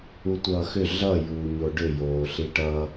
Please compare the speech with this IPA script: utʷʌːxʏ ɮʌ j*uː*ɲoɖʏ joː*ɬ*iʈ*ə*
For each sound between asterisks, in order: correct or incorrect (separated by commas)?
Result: correct, correct, incorrect